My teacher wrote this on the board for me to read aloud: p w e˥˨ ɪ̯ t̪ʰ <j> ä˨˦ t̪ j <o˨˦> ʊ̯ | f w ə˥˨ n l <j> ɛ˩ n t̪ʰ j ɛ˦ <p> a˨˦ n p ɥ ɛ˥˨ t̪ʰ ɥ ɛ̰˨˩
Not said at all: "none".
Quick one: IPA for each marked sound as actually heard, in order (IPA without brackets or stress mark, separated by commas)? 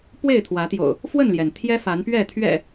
w, o̰˨˩, j, f